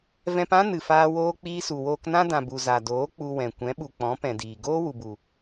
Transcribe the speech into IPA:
vɛ̃˧pã˦ nɨ˨faː˧woː˧ k͡piː˧su˨woː˧knã˦ dã˨bu˨ za˨doː˨˦ k͡pu˧wɛ̃˨ kʷɛ̃˨˦ɓu˨k͡pɔ̃˨˦ pɛ̃˨diː˨ ɡoː˦ wu˨bu˨

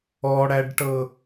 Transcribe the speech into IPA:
ɔɽæɖʈɤ

